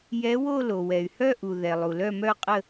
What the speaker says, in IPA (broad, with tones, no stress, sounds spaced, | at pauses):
j ɛ˧˥ w o˥˧ l o˩ w ɛ˩ y̯ h œ˥˧ ʔ u˩ ð ɛ˩ lˠ u˩ l œ˥˧ m œ˥˧ qʼ ə˥˧